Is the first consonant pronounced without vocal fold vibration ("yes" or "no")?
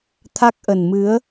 yes